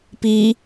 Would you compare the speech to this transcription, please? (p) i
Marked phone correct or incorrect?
correct